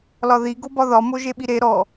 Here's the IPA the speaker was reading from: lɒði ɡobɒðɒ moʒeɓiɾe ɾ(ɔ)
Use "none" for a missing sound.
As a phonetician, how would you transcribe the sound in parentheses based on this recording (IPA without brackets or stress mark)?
ɔ